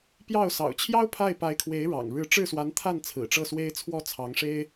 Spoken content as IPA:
pjɑ˥˩ʊ̯ sɑ̰˨˩ʊ̯t͡ɕʰjɑ˥ʊ̯ pʰa˥˩ɪ̯pa˧˥ɪ̯kʰwe˧˥ɪ̯ ɻɑ̰˨˩ŋɻɻ̩˧˥ ʈ͡ʂɻ̩˥˩swa˧˥nt̪ʰa˥˩n t͡sʰɹ̩˨˩ʈ͡ʂɤ˥˩swe˥ɪ̯t͡sʰwɔ˥ t͡sʰɑ˧˥ŋʂe˥ɪ̯

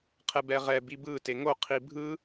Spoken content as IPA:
qʰɛbɛʁɛ bibɯ teŋo qʰibʱɯ

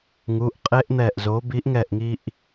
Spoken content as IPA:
ŋu˩˧˩ʔqʼe˦˥ʔn̪ɛ˧˩ʔzo˨˥ bi˨˥ʔŋɛ˧˩ʔŋi˧ʔ

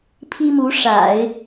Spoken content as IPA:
pʰi˥mu˧˥ ʂa̰˨˩˦ɪ̯

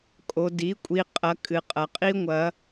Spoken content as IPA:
kʼo˨di˩˥ kʷʼi˨qʼɐ˩˥ kʼɨ˨qʼɐ˨qʼi˥ ŋʷɐ˨˩˦

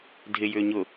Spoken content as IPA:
dʱɪjʏː ɲʊ

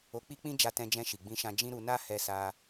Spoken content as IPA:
o˧k͡pi˦k͡pĩ˦ d͡ʒa˧tɛ̃˧d͡ʒɛ̃˧ ʃi˨ɡ͡bĩ˧ʃã˧ d͡ʒĩ˦ɾu˧ na˦hɛ˧sa˧

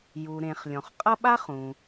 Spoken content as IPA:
ju˩ ɾẽ˩χ lʲɔ̃˩χqʼʌ˥ ɓa˥χũ˩

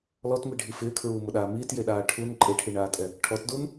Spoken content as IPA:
lɔtmiɖʱi fɪːkʰɹuːmʊɗaː miːtjeɗaː ʈʰun ǃʼeʈʰiɳaːtʼɛ | ʈʰɔtdun

